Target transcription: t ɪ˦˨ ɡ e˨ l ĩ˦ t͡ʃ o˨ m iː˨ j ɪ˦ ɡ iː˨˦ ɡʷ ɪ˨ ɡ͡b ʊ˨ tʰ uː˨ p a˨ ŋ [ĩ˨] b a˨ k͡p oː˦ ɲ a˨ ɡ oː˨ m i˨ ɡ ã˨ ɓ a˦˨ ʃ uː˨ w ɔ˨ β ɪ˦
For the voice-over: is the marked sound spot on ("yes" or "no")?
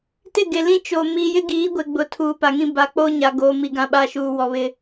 no